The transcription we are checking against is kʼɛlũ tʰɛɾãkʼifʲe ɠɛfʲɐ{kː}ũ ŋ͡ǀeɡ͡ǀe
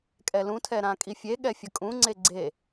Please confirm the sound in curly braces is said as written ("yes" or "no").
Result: no